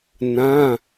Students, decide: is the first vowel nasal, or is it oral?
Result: nasal